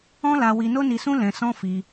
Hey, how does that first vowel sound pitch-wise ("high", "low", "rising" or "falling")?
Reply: high